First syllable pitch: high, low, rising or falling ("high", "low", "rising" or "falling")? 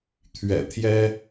low